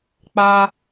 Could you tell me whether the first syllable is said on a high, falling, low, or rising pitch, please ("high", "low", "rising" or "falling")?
high